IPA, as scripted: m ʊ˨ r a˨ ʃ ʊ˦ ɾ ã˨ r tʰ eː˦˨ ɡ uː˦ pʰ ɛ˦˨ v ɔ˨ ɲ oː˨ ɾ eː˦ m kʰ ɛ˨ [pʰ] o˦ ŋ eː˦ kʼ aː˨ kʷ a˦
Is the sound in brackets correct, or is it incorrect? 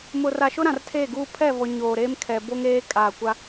incorrect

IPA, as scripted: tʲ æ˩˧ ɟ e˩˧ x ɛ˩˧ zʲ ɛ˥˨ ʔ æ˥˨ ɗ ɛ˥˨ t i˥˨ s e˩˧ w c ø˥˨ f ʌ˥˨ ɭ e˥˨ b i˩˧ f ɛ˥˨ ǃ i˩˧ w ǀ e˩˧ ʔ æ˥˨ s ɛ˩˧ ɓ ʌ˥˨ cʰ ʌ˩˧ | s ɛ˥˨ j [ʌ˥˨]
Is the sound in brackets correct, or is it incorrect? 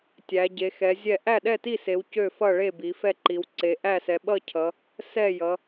incorrect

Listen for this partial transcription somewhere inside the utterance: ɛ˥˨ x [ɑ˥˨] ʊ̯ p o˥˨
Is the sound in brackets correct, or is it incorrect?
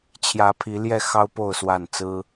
incorrect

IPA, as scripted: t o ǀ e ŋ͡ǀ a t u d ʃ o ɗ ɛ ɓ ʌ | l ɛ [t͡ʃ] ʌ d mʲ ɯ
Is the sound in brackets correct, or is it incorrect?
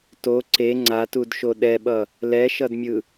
incorrect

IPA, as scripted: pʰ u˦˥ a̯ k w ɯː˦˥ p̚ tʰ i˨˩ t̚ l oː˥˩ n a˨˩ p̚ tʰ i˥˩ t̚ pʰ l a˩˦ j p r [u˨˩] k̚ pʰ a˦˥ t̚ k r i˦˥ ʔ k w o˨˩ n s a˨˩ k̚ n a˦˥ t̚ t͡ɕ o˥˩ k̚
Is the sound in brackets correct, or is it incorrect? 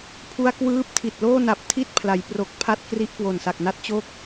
incorrect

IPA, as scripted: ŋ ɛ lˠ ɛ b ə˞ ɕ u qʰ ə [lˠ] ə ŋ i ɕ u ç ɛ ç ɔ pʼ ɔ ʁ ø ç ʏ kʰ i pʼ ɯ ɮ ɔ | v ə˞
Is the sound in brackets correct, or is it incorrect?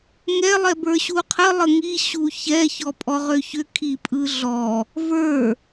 correct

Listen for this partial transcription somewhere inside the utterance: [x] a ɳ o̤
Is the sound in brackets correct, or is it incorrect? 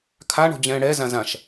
incorrect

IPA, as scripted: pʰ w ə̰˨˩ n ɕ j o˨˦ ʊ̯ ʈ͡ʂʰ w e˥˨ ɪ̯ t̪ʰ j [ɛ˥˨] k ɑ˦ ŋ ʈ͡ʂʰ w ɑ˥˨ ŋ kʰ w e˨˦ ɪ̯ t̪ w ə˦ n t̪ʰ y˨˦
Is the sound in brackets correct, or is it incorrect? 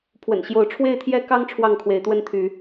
incorrect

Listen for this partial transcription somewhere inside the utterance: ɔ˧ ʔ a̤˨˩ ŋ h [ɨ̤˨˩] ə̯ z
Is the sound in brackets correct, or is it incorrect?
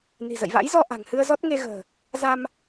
incorrect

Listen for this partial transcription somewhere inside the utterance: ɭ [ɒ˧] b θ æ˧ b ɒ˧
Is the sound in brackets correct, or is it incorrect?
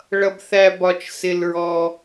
incorrect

